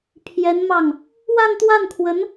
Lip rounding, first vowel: unrounded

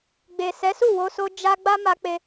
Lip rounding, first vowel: unrounded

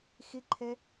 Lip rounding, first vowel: unrounded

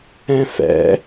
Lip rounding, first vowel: unrounded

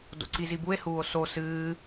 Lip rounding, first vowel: rounded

